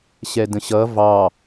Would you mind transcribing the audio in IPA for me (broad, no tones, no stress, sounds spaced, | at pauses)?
ɕ ɛ d ə̃ ɕ ʌ v ɑ